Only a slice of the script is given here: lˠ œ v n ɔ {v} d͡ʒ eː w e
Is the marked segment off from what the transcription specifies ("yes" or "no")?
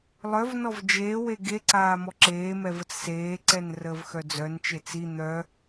no